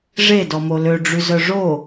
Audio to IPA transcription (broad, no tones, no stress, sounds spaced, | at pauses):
ʐ e d ɔ m o l ø ɖ͡ʐ y z œ ʐ o